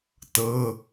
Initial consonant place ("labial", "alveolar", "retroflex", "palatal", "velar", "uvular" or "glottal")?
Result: alveolar